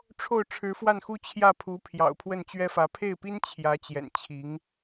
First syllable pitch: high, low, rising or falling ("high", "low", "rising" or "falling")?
falling